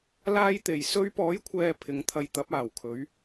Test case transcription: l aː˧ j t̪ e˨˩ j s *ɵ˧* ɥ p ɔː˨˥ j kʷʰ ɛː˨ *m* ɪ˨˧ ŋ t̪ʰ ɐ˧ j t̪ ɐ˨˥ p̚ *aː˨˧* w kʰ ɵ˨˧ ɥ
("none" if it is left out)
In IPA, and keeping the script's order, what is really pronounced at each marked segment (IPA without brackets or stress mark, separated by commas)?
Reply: ɵ˧, pʰ, aː˨˩